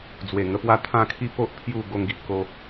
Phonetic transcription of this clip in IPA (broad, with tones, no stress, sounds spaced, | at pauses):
d͡z w e˨˩ ŋ ə˧ p w a˥˧ t̪ʰ ã˥˧ kʰ i˥˧ p o˦ ʔ pʰ j u˥˧ ɡ o˦ ŋ ɡ i˨ ʔ k o˦